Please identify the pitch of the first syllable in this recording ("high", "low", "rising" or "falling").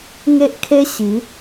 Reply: high